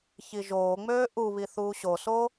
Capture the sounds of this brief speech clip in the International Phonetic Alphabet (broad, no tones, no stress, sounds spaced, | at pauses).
ç i ʒ oː ŋ͡m øː ʔ u β i θ uː ɕ o s oː